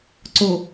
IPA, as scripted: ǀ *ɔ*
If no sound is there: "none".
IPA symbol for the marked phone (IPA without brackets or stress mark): o